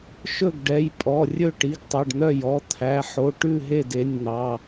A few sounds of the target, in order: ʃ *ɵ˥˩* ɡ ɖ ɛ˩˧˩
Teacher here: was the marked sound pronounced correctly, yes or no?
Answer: yes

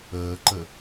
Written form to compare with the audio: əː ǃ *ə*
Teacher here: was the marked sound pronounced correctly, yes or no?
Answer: yes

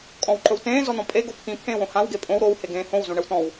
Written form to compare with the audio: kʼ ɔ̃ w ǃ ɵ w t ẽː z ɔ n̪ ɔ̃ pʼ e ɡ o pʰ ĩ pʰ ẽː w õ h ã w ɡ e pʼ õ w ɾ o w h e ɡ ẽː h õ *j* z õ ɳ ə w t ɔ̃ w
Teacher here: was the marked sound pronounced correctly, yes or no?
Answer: no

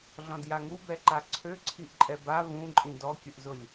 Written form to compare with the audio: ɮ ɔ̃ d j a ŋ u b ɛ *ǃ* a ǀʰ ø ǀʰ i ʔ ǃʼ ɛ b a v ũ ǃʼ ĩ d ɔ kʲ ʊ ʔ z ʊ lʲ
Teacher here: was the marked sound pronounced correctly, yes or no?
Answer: yes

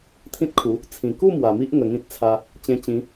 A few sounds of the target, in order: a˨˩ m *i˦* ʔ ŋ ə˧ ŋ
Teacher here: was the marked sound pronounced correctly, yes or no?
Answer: yes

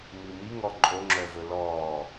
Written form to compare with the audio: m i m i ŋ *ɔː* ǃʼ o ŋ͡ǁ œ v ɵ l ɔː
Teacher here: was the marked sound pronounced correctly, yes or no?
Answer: no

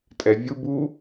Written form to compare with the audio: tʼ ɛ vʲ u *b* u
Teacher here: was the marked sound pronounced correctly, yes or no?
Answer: yes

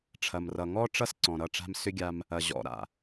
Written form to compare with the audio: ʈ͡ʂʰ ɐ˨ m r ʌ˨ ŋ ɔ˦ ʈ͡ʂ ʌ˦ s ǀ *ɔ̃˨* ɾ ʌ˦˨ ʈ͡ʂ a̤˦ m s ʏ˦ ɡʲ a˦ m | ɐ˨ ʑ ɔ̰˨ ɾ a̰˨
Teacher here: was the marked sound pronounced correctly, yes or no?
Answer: yes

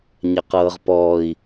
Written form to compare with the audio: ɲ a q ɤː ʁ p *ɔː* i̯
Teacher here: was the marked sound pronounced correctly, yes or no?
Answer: yes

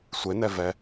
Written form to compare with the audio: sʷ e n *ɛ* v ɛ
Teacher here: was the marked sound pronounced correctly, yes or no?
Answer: yes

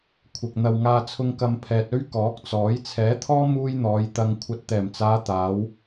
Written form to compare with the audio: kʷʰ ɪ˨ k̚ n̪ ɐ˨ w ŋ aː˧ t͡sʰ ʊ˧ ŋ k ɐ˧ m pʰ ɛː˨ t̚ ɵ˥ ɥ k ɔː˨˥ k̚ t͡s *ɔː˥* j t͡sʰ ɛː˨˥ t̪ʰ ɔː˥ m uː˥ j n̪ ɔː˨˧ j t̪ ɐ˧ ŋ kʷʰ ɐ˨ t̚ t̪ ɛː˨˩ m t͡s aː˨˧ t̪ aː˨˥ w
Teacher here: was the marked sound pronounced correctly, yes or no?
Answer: no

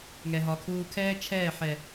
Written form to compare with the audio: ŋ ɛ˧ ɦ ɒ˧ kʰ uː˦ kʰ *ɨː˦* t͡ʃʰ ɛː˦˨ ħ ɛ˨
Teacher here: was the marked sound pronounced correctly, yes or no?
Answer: no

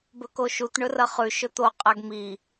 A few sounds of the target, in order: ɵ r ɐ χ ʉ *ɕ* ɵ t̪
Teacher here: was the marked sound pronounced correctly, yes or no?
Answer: no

